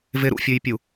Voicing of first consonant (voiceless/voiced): voiced